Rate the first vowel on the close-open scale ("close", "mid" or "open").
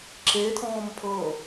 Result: mid